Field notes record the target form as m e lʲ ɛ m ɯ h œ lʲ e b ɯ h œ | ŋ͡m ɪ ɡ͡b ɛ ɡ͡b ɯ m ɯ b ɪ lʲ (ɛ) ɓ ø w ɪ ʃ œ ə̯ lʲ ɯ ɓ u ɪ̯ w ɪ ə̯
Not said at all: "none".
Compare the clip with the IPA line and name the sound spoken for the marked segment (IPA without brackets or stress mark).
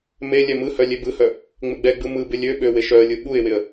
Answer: ø